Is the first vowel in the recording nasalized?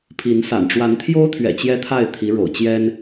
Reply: no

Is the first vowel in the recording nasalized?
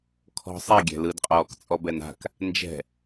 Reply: no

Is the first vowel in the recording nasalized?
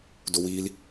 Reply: no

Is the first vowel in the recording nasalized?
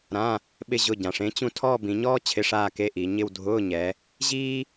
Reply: yes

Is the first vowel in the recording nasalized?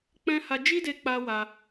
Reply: yes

